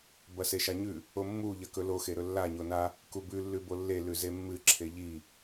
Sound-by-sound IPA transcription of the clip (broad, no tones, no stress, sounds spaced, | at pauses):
b ɐ s e ʃ a ɲ ʉ | o mː u ʎ ɐ k ɵ l o x e ɾ ɵ lː a ɲ o n a | k u b ʉ lː ʉ b o lː e l ʉ z e mː ɨ ǁʰ e ʎ i